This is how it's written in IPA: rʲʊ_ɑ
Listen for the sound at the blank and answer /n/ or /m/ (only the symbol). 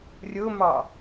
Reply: m